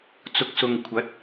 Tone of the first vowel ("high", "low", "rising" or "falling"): low